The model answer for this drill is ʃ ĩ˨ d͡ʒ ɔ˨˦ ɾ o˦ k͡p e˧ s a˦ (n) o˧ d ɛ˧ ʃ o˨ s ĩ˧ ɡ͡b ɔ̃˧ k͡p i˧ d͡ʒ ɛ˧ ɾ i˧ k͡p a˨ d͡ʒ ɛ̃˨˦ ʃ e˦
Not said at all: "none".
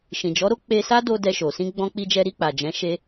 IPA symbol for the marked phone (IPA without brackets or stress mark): d